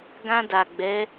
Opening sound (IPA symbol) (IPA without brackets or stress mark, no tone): ɡ